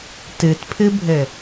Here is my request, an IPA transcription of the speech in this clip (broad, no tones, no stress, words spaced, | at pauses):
tɨtpʰɨbʱɘ